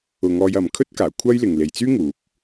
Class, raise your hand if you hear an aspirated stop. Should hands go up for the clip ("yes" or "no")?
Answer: yes